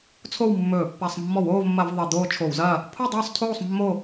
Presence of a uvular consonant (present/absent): absent